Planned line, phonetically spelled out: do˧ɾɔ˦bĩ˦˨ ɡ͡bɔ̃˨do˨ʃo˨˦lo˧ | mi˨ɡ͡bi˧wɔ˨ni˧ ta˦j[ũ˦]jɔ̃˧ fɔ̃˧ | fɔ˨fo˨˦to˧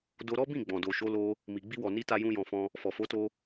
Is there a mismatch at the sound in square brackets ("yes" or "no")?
no